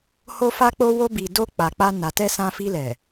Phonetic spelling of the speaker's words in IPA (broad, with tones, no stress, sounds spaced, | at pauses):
h o˧ f a˦ k͡p o˦ w o˦ b i˧ d o˦ k͡p a˧ k͡p a˦ n a˧ t ɛ˦ s ã˧ f i˧ l ɛ˨